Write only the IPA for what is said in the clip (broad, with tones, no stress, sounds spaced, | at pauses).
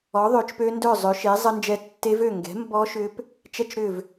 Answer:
ɔ˨˥ ðˤ ø˨˥ t͡ʃ p ø˦˥ n d œ˥˨ zˤ ø˨˥ ʃ eː˨˥ zˤ ə˦˥ n d͡ʒ ɛ˦˥ tː e˦˥ v ø˥˨ ŋ ɡ ɛ̤˨˥ m b ɔ˦˥ ʃ ʏː˦˥ p | t͡ʃ ɛ˥˨ t͡ʃ ɾ ʏː˥˨ v